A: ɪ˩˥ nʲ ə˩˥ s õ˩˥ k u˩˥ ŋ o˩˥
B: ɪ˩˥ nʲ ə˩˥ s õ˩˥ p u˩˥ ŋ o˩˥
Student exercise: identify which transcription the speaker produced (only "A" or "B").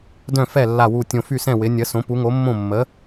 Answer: B